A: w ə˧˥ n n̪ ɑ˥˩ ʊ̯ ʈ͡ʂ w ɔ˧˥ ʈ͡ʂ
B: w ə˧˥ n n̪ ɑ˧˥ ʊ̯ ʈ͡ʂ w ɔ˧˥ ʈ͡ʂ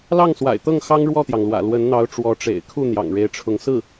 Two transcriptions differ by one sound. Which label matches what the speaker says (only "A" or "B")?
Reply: B